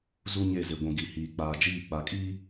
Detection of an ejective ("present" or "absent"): present